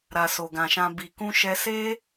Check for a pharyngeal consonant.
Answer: absent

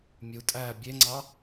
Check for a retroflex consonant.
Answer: absent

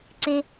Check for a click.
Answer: present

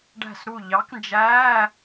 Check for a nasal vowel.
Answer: absent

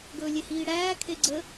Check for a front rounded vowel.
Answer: absent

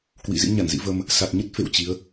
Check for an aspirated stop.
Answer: absent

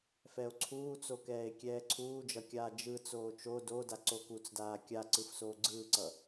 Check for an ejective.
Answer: absent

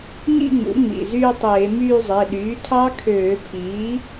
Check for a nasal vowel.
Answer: absent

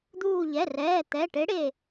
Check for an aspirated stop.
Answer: absent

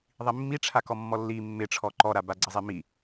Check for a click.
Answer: present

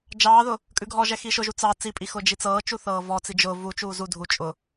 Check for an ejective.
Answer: present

